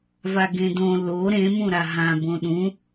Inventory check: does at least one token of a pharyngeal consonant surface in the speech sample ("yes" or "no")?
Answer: no